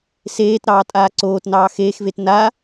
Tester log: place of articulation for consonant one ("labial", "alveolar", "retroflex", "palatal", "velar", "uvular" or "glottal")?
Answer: alveolar